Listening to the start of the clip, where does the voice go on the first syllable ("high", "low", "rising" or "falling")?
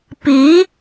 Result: rising